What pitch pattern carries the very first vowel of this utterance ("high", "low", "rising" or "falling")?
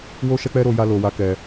high